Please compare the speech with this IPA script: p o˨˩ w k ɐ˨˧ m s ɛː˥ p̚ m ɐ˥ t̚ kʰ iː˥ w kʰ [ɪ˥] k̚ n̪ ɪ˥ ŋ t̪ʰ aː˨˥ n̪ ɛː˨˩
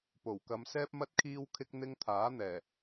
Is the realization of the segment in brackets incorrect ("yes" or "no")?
no